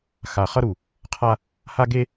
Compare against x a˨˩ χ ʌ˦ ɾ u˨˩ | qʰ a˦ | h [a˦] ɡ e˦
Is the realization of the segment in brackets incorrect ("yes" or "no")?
no